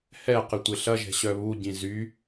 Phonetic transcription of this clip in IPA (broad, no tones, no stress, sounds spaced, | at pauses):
h ɛ q ɪ tʷ ɪ ɬ ɐ ʒ ɛ̤ ɕ œ β u ɟ ĩ z y